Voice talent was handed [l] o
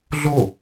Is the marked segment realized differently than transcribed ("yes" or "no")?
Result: yes